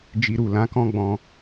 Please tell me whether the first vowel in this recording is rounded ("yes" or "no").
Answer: no